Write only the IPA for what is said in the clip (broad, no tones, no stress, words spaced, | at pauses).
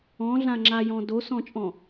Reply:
ɔ̃ɮãŋ͡ǁajɔ̃ dosɔ̃t͡ʃʼɔ̃